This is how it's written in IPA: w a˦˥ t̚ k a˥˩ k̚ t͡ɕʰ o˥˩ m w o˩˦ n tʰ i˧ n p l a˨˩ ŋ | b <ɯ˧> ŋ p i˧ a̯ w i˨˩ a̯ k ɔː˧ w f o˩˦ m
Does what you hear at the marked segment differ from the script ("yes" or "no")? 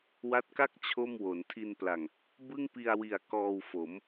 yes